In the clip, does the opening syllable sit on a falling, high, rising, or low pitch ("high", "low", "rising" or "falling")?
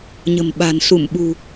low